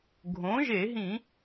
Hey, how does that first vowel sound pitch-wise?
rising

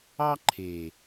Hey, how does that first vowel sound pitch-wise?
high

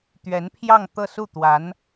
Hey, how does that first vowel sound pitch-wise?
rising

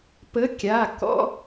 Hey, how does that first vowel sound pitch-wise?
rising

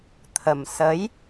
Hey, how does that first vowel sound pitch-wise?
low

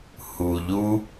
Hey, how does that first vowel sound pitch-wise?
low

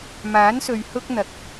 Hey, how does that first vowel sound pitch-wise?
rising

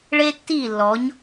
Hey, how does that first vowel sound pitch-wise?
high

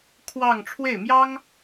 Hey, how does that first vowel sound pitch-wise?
falling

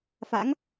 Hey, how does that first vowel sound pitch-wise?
rising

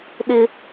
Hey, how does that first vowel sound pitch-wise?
high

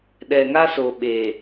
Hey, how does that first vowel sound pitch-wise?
low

